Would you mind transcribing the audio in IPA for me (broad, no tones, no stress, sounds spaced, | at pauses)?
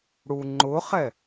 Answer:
ɽ u ŋ͡ǃ ʊ χ ɛ